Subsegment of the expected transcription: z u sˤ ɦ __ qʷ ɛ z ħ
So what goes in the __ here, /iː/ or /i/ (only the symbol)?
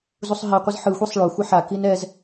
i